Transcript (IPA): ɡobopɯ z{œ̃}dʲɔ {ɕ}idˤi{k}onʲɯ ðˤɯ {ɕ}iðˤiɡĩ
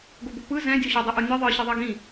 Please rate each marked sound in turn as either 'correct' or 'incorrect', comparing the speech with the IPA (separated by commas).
incorrect, correct, incorrect, correct